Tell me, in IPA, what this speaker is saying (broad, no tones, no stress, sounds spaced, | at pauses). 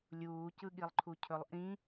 lʲ uː c ɯ ɠ i lˠ ǃʰ u cʰ ɵ lˠ ʔ ĩ